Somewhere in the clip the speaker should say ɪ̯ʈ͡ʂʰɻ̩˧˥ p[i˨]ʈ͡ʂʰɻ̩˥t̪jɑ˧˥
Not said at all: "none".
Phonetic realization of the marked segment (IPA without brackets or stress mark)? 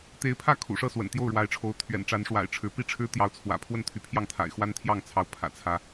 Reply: i˥